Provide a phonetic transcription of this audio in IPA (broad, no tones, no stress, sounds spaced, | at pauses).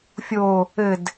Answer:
fʲ o | ɘ d